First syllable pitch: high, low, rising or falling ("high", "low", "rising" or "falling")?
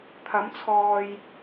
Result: rising